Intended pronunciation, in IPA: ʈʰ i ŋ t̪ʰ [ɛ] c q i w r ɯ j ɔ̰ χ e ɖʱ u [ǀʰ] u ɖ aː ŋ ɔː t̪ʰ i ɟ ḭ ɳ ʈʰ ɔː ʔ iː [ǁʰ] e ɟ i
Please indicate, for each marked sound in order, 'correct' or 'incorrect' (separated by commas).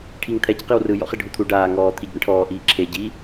correct, incorrect, correct